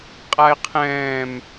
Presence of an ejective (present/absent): present